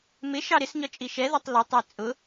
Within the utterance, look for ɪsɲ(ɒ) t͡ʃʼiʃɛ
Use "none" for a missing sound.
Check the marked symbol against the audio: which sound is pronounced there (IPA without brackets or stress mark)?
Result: ɒ